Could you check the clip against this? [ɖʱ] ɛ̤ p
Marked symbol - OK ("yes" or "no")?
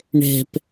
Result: no